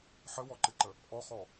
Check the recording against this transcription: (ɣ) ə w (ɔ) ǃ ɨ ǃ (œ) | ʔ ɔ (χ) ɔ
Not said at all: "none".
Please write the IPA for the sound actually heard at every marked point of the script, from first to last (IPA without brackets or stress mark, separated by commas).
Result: ħ, ɔ, ə, χ